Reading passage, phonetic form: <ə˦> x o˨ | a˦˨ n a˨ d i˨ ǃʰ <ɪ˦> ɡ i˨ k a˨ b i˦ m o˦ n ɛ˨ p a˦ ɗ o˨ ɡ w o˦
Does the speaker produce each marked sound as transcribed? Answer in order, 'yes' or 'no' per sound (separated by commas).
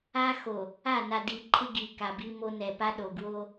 no, yes